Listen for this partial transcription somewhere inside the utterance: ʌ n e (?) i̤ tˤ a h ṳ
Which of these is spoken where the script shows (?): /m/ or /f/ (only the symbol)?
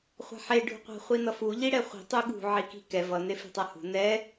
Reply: f